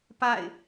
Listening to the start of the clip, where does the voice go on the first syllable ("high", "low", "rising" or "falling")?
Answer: falling